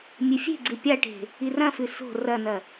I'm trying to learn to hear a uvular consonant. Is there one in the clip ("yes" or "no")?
no